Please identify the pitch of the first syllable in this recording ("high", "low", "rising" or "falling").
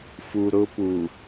low